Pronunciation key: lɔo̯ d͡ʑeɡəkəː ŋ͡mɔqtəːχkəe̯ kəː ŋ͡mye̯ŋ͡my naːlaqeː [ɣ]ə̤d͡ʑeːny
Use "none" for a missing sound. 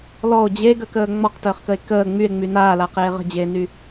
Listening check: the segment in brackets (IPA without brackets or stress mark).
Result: ʁ